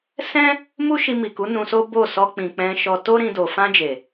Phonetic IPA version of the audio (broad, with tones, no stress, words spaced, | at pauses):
sɛ̃˦ | mu˦ʃi˧mi˨ku˨˦ nũ˧so˦bo˦˨ sɔ˧k͡pĩ˨ k͡pɛ̃˧ ʃɔ˧ to˦ɾĩ˧ do˨ fã˧ d͡ʒe˨